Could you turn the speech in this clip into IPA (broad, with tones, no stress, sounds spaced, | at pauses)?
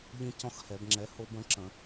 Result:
ʎ ĩ˦ c ɔ̃˦ x h ɛ˧˩˧ b ŋ͡ǁ ɛ˨˥ h o˦ b ə̃˨˥ ǁ ə̃˧˩˧